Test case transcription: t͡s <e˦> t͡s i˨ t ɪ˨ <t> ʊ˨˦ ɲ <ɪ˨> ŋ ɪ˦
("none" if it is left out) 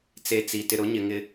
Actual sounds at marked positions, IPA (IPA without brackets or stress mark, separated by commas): e˦, ɾ, ɪ˨